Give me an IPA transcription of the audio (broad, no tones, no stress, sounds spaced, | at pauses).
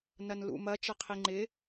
n ɐ n l ṵ m ɐ t͡ʃ ɐ qʰ i ŋ͡ǃ ɪ